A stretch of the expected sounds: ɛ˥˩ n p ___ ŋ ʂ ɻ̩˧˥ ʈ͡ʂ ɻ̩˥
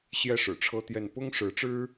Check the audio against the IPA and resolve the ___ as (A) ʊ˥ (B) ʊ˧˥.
A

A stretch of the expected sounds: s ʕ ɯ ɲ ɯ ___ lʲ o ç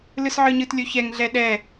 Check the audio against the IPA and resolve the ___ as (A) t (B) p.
A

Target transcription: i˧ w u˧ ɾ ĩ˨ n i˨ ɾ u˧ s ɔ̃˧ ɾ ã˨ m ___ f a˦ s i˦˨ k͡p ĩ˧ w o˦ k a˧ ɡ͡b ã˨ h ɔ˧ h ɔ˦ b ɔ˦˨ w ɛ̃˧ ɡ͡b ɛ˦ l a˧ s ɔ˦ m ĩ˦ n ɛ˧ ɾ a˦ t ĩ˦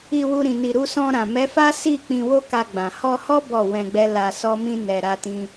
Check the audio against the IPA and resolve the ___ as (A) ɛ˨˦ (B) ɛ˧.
A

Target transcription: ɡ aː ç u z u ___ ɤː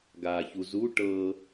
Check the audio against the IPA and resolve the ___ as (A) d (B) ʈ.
B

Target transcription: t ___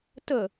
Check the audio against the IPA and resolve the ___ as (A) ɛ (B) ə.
B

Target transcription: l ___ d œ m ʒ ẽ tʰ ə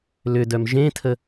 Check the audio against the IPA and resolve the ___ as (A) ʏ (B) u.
A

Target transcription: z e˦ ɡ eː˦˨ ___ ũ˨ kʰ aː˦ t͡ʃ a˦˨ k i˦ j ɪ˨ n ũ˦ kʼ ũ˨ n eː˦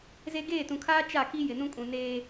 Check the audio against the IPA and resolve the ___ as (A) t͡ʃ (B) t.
B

